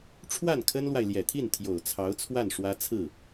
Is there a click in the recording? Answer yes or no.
no